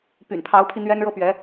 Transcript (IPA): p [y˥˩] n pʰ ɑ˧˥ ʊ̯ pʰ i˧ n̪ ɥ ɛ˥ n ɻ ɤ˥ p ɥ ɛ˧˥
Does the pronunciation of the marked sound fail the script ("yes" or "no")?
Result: yes